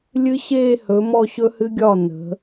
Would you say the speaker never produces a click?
yes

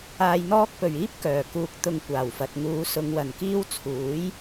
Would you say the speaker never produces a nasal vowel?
yes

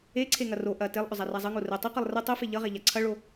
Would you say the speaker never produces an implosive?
yes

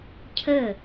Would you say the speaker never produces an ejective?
yes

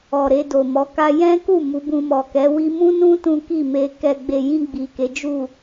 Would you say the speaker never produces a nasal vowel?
no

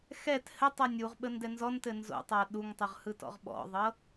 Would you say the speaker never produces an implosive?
no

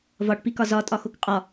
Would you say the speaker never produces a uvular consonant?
no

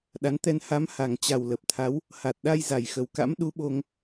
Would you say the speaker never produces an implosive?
no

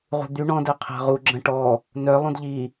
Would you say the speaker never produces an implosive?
yes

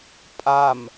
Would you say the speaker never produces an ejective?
no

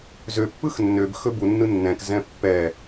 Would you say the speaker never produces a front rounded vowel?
no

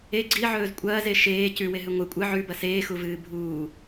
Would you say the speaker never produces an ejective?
no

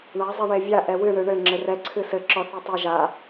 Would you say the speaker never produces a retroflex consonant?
no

